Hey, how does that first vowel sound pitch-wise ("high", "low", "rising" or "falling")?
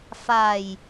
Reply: low